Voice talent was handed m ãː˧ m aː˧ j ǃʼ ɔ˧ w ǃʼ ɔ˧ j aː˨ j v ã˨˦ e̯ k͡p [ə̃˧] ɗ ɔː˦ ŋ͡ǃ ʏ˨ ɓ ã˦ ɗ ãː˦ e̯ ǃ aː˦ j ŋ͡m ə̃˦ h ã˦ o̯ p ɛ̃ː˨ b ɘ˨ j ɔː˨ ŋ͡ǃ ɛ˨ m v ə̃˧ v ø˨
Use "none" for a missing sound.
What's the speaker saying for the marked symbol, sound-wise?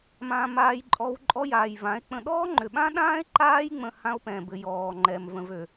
ə̃˧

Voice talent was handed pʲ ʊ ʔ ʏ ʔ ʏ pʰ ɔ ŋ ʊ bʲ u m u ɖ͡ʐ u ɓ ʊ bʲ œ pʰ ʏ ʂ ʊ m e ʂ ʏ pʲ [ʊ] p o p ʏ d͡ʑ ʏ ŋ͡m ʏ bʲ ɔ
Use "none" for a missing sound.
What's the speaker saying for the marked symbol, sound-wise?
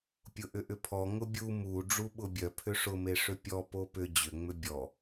ɔ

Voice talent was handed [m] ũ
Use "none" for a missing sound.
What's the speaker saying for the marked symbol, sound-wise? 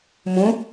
m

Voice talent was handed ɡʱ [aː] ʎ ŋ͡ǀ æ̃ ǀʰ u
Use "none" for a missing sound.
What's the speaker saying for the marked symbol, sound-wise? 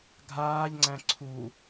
aː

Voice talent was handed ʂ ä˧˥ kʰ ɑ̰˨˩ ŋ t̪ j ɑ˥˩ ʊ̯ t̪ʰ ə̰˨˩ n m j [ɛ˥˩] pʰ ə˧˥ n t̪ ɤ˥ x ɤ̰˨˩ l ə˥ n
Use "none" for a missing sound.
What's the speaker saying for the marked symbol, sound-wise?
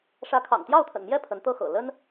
ɛ˥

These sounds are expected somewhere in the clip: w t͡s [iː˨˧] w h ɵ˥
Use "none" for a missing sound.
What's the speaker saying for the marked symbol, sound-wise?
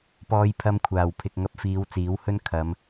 iː˨˥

